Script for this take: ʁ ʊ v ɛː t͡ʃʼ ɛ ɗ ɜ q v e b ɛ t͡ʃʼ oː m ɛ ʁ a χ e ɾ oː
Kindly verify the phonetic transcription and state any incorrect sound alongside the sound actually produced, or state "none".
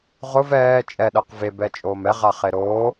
none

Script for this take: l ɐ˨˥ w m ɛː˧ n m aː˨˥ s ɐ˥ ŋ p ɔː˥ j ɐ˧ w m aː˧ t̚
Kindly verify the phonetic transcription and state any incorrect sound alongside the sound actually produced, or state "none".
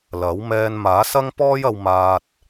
none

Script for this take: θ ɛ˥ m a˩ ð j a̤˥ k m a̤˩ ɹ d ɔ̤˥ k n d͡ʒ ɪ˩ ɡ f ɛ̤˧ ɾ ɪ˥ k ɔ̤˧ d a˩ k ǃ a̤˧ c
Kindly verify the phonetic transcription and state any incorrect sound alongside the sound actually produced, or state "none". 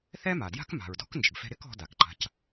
ð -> d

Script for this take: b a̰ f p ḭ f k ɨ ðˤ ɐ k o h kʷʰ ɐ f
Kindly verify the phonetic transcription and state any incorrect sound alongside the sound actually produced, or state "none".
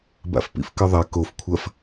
h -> f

